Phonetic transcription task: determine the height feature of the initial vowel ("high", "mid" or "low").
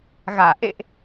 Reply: low